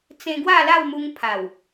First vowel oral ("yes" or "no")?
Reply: no